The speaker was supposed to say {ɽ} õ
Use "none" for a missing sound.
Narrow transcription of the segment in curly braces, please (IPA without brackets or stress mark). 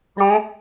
ɽ